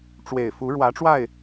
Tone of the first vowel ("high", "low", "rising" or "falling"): low